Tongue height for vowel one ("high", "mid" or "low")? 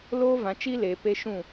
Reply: mid